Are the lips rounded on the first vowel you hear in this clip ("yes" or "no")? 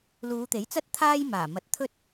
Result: yes